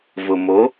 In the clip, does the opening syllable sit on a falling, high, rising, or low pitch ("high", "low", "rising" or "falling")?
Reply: low